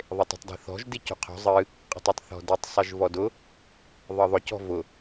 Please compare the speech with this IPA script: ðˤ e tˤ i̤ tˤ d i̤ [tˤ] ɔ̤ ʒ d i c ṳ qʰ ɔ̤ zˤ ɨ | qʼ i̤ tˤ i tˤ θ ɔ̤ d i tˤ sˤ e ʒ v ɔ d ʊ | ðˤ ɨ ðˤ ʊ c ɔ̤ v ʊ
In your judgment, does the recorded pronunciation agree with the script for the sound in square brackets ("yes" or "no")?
no